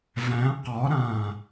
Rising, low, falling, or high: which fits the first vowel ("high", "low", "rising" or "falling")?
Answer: rising